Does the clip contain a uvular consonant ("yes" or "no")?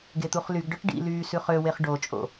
yes